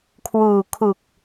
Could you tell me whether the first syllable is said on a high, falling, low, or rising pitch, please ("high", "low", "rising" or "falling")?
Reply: low